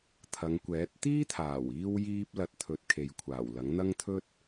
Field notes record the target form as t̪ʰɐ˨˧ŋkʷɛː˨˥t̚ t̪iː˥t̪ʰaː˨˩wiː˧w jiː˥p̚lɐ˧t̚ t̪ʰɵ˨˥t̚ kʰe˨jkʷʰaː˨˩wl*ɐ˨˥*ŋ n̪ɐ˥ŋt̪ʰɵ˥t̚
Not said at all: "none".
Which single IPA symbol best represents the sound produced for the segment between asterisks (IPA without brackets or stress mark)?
ɐ˨˥